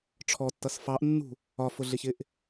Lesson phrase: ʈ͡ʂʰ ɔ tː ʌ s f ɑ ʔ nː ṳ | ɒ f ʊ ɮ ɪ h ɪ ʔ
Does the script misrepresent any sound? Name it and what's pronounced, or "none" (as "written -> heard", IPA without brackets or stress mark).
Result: h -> ç